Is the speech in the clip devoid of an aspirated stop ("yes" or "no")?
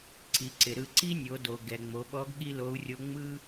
yes